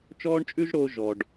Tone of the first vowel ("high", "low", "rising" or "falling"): high